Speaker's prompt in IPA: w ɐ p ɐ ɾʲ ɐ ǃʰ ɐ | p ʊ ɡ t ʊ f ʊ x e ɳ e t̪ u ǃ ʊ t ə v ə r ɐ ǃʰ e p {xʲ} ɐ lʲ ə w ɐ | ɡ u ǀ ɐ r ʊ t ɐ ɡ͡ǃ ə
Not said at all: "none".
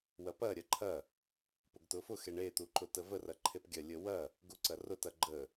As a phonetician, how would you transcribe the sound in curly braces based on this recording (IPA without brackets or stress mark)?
ɡʲ